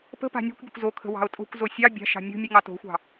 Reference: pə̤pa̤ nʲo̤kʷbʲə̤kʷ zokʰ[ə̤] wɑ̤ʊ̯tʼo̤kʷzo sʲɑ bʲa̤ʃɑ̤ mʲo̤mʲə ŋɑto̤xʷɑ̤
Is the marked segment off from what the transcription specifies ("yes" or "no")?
no